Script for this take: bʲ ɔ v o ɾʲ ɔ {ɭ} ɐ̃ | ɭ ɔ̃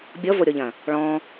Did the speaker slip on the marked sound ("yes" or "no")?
yes